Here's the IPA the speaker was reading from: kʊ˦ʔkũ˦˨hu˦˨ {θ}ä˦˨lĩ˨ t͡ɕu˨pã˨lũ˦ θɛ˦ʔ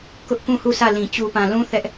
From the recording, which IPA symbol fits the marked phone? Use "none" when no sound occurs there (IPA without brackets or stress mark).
s